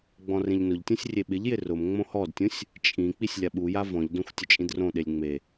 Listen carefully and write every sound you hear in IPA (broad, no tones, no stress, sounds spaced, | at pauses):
ɡ͡b ɔ̃ r ẽ ʎ n ʊ ʎ tʲ ũ sʲ rʲ e ɓ ɪ ʎ j ɪ r ʊ m ŋ͡m õ h ɔ d tʲ ũ sʲ | t͡ʃʼ ĩ k͡p i sʲ lʲ a ɓ u j a v ɔ̃ ʎ d õ xʷ tʲ ʊ t͡ʃʼ ĩ d r õ ɗ e lʲ ŋ͡m e